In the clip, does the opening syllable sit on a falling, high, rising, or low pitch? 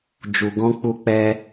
low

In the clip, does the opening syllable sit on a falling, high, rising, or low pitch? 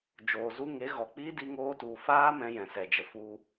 low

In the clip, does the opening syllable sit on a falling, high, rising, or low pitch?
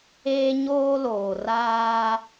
high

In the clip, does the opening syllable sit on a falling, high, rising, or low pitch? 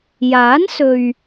rising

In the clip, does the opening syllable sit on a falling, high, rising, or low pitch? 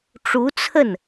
rising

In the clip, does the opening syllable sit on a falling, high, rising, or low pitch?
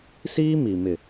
high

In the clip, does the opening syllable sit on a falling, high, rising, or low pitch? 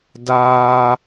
high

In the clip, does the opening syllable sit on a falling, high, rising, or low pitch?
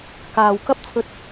low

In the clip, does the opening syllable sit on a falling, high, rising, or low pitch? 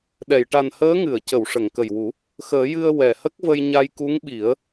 low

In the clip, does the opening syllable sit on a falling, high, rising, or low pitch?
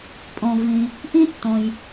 low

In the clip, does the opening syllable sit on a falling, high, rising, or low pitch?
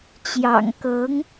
low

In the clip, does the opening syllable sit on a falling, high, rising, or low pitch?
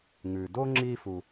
low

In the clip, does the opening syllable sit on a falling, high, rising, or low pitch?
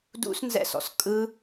high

